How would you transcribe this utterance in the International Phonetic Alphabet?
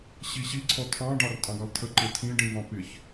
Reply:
ɕ i ɕ i ǀʰ ɔ tʰ ɑ̃ ɖ ɑ r tʼ ɑ̃ ɡ ɑ lˠ tʰ ə ǃ ɪ tʰ ĩ ɖ ĩ v ɑ̃ p ɪ ç

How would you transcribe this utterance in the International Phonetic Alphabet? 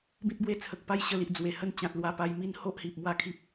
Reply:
b ĩ˦ t̚ b w e˦ t͡sʰ ə˨ k̚ p a˦ j ɕ ə˧ l i˨ ʔ d͡z w e˨˩ h ə˦ n t͡ɕ ã˨ t̚ l w a˧ p a˧ j m i˦ n h o˦ ʔ h i˨ p̚ m w a˥˧ kʰ i˦ p̚

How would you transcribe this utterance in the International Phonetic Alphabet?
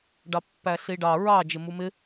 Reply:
ɖ ɑ pː æ ɬ i ɖ ɑ ɹ ɑ d͡ʒ ɪ m u m ɪ

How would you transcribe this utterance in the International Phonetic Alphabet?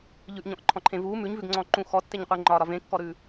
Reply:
ʎ ʉ ʔ ɲ ɔ̃ ʔ ǃʰ ɔ̃ ǃʰ ẽ v u m ʉ ɲ v ʉ ɡ ŋ͡ǀ ɔ̃ ǃ ũ x ɔ tː e ɲ qʷ e ŋ͡ǃ ɒ ɾ ɒ v ẽ kː ɔ ɾ ʉ

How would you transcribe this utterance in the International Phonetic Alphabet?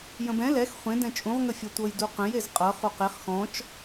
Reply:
j ə̃ b ɛ̃ l ɛ x χʷ ẽ d ɛ̃ t͡ʃʼ ũ ʁ ŋ ə fʲ ɛ tʷ ɤ j d u q ə̃ j e z qʼ ɤ χ u q e χ x ɔ̃ t͡ʃ

